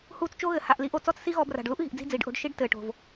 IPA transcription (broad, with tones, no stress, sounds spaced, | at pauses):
h uː˧ t͡s t͡ʃ o˦ ɣ ɘ˨ h a˨ ʔ l i˧ ʔ o˨ t͡s ɔ˦ t͡s s i˦ ɣ ɔ˧ b r a̤˨ ɖ l u˦ ʔ ɣ i̤˨ ʔ d͡z i̤˦˨ d͡z iː˨ ɖ ʔ o̤˧ ɖ ʃ i˦ ɖ t ɘː˨ ʈ o̤˨ v